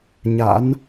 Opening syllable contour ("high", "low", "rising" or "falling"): rising